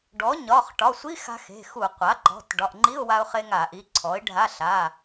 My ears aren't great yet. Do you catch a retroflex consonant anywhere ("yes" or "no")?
yes